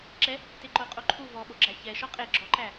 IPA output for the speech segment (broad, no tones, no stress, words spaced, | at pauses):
ǁɛ | teǃoqʼoǃʰu vɔɓoɡ͡ǁæ çɛ ʃɔqʼe ɡ͡ǁɔǃæ